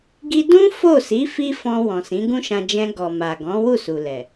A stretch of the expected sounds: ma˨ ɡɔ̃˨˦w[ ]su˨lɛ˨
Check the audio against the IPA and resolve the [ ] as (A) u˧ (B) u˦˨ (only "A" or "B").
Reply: B